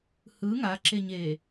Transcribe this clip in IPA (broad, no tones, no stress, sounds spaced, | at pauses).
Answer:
h ɯ ŋ a ǁ e ɲ eː